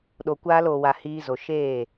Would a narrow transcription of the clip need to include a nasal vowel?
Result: no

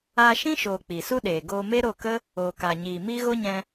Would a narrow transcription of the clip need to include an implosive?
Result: yes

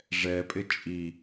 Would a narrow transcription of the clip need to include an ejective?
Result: yes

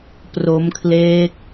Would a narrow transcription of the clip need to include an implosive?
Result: no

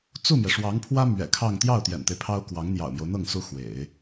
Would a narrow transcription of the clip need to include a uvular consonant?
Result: no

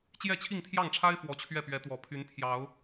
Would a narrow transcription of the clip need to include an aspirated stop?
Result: yes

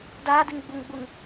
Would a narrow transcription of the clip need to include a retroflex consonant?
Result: no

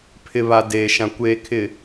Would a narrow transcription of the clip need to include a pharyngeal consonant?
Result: no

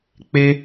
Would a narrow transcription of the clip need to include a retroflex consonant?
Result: no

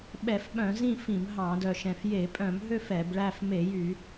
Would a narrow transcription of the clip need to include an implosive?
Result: yes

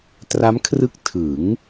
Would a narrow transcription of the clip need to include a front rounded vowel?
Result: no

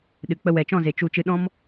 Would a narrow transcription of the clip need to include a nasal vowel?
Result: yes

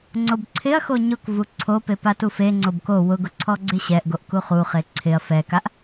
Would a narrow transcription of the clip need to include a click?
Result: yes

